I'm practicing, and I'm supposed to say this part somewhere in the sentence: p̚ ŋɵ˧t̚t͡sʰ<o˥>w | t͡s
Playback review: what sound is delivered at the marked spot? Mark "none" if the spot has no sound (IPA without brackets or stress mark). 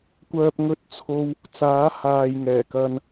o˧